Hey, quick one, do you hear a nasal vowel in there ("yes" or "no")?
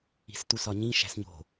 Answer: yes